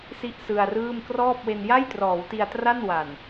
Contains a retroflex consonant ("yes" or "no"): no